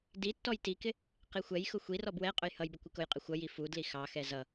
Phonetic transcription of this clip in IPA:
d i tː ɔ j t i k ɪ | q i xʷ ɛ j x ʊ xʷ i r ɔ b w ɛ qʼ ʊ j h ʌ j b ɪ kʷ ɪ k ʊ j qʼ ɪ xʷ ʌ j i f u d l i x ɑ x ɛ z ʌ

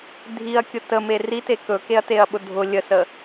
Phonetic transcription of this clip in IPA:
dʱ i ɐ̯ kʲ ʊ t ə m e r i t e k ɵ k e ɐ̯ t e ɐ̯ ɓ ʊ dʱ ʊ lʲ ə s ə

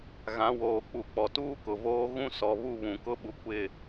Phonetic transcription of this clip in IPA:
ɣ ã˨˦ w oː˨ k͡p u˨ k͡p ɔ˨ t uː˦ k ʊ˨ v oː˦ ɣ ũ˦ s ɔ˨ β u˦˨ β ũ˨ k ʊ˦ ɓ u˨ kʷ ɪ˦˨

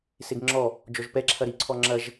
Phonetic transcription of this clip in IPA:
s e ɡ ŋ͡ǁ ɔ | d͡ʒ ɔ ʒ p ɛ ǁʰ ɐ ɾ i ǀʰ ɔ ŋ͡ǁ ɐ ʒ

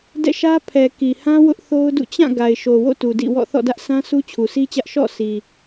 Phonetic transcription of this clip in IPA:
d ɛ̰˦˨ ʃ ä˦ pʰ ɛ˨ k i˨ h ã˦ w ʊ˦ ʔ θ o˦ ʊ̯ d ṵ˦˨ t͡ɕ ã˦˨ ɡ a˨ ɪ̯ ʃ o˨ w o̰˦˨ t u˨ d ḭ˦˨ w ɔ̰˦˨ θ ɔ̰˦˨ d ä˦ ʔ s ã˦ s u˦ t͡ɕʰ u˨ sʰ i˦ t͡ɕ ä˦ ʔ ʃ ɔ̰˦˨ sʰ i˨

